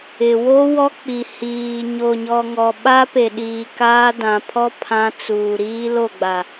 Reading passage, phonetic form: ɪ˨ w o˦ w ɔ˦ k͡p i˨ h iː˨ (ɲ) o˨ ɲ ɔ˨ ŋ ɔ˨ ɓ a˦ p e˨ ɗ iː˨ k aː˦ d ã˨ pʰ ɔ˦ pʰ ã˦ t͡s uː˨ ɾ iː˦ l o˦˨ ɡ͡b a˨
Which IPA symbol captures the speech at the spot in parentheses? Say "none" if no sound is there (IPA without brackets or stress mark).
ɲ